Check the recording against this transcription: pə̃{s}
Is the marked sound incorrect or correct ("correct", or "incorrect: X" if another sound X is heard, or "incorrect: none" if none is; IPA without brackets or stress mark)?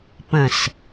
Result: correct